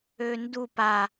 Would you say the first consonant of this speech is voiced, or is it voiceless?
voiced